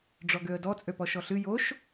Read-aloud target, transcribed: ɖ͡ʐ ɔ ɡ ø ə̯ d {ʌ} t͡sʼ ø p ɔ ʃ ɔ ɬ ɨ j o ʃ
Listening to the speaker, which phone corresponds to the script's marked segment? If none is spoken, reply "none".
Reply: ɔ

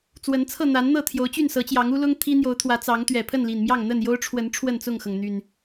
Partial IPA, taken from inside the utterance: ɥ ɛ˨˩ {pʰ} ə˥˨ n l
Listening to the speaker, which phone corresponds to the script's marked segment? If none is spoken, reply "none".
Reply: pʰ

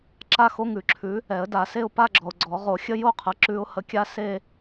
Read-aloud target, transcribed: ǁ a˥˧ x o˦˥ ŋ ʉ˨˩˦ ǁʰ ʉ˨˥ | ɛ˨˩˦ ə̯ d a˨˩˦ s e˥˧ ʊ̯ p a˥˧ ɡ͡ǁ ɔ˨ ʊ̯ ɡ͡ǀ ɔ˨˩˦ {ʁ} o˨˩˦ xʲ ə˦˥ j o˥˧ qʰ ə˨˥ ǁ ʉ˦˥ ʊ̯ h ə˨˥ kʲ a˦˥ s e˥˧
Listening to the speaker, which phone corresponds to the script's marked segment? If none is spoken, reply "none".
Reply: ʁ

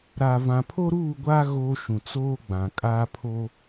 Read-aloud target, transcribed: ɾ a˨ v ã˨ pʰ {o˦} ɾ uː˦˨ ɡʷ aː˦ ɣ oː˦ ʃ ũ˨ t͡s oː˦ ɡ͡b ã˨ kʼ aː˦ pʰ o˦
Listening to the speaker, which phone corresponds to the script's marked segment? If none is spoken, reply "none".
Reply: o˦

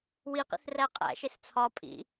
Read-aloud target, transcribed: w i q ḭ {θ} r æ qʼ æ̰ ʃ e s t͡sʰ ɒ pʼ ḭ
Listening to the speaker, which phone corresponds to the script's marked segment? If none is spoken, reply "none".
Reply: θ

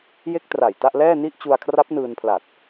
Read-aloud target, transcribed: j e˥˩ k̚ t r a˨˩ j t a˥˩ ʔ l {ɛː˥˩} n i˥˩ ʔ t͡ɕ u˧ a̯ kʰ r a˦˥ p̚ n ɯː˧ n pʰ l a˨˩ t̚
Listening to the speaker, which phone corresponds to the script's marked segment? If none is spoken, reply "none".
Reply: ɛː˥˩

